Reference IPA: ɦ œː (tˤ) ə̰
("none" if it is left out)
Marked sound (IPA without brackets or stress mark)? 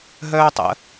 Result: tˤ